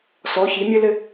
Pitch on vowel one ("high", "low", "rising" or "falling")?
rising